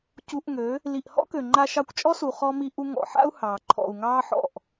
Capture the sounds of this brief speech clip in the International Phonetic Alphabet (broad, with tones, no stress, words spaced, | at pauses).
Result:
cu˧ʔŋø˨˦ | li˨ʔhɔ̰˦kø˨ ŋ͡ǃa˧ʃɑ˧kʷt͡ʃʼɔ˦su˨ χɔ˧mi˧ʔu˧ ŋɔ̰˨ ħa̰˦u̯hɑː˨ ǃʰɔ̰˨u̯ ŋɑː˦ħɔ̰˦˨ʔ